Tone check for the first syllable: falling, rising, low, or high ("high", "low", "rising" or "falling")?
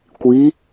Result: rising